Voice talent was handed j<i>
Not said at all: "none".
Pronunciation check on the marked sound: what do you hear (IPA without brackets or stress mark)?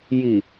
i